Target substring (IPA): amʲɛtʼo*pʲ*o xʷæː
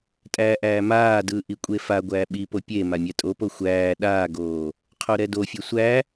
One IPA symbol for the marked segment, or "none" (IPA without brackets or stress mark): p